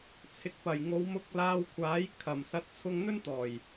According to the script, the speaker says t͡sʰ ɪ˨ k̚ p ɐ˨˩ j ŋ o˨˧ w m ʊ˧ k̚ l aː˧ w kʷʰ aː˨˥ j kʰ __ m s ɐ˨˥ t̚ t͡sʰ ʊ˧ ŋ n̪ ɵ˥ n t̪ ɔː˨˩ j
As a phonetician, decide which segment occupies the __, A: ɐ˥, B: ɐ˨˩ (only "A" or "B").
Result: B